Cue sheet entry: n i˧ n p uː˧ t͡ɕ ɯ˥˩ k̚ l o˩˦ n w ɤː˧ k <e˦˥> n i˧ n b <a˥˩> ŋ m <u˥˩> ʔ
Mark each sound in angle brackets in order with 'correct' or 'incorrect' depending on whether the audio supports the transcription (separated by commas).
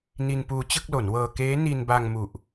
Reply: incorrect, incorrect, incorrect